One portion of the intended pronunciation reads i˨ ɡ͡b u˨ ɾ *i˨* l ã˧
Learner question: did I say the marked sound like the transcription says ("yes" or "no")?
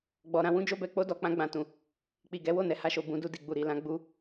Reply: yes